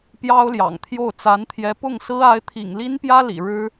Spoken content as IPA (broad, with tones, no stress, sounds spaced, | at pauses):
p j ɑ˥ ʊ̯ l j ɑ̰˨˩ ŋ t̪ʰ j o˥˩ ʊ̯ t͡s a˧˥ n t̪ʰ j ɛ˧˥ p ʊ˥˩ ŋ s ɹ̩˥ a˧˥ ɪ̯ t̪ʰ ḭ˨˩ ŋ l i˥ n p j ä˥ l ḭ˨˩ ɻ ɻ̩˥